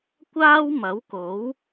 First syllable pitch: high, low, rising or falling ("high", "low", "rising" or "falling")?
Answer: high